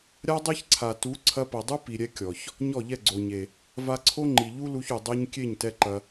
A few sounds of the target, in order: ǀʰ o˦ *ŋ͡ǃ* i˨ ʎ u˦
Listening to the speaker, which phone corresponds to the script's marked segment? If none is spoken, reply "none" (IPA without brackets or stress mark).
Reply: ŋ͡ǃ